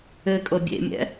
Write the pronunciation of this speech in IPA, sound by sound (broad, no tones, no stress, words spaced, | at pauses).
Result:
ɘkʼɤ bʲḛmʲɛ̰